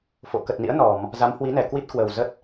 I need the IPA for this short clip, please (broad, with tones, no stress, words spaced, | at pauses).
fo̰˧˨ kə˨˩t̚nḭ˧˥ə̯ nɔ˧˩˨m | za˨˦mhwi˨˦nɛ˧˩ kwi˦˥t̚kwəː˨˩w zə˦˥t̚